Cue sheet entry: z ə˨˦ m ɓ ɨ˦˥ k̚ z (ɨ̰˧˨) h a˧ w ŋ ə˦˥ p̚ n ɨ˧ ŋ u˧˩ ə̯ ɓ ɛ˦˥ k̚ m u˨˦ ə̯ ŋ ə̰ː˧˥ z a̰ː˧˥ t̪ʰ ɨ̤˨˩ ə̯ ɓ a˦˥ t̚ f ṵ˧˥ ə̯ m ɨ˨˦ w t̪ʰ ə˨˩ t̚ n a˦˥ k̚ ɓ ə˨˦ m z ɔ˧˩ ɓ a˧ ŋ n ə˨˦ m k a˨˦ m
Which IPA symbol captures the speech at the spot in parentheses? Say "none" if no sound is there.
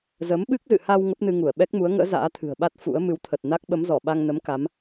ɨ̰˧˨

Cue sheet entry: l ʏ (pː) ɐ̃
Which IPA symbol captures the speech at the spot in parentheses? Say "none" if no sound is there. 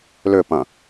p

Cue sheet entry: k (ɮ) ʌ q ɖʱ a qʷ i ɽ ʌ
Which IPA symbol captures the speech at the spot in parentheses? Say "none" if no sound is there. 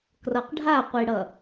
r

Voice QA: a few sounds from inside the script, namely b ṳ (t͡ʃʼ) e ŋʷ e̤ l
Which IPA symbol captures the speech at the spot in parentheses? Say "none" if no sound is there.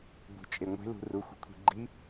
t͡ʃʼ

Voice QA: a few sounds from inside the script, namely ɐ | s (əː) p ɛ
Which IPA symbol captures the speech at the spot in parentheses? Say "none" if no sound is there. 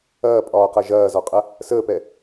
əː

